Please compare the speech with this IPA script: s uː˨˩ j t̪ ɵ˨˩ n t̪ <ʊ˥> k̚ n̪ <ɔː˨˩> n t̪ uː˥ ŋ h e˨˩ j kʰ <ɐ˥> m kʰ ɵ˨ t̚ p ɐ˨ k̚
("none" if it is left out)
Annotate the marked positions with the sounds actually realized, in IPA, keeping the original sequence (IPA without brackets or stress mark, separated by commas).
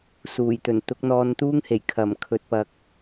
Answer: ʊ˨˥, ɔː˧, ɐ˨˩